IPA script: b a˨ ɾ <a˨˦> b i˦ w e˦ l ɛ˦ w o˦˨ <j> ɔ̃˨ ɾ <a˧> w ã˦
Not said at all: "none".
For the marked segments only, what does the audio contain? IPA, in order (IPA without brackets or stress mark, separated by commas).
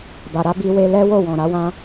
a˨˦, w, a˨˦